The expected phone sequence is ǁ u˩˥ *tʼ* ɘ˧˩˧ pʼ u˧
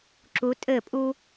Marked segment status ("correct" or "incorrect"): correct